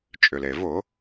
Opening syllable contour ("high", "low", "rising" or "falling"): low